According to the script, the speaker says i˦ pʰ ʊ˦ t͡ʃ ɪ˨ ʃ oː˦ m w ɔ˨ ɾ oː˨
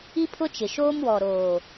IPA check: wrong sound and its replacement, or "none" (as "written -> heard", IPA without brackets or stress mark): none